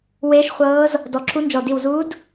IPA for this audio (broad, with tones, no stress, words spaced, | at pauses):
weː˧˥ʃχʷɤː˧˥z | dɔ˧˩ǁʰu˧˥nd͡ʒɔ˧˩ di˧˩wzuː˧˥d